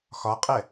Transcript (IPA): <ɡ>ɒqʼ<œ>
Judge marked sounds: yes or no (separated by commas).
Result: no, no